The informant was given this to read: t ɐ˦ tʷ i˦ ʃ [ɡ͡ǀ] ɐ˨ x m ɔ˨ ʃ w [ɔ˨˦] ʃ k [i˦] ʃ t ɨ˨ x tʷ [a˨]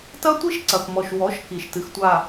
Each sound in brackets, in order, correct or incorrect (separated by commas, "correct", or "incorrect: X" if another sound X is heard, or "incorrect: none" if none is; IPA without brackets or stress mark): incorrect: ǀ, correct, incorrect: i˨, correct